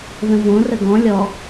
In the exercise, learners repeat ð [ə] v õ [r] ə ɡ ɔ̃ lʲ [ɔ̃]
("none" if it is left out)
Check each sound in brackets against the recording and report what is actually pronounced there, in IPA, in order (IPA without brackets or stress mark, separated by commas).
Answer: ə̃, r, ɔ